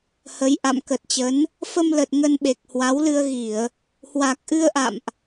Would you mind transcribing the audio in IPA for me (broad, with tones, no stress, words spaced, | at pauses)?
hə˨˦jʔa̰˧˨m kə˨˩t̚t͡ɕə˨˦n | fə˧mlə˨˩t̚ ŋə˧nɓe˨˩k̚ hwa˨˦wlɨ˧ə̯ ɣi˧˩˨ə̯ | hwa˨˩k̚ʔɨ˧ə̯ʔa̰˧˨mʔ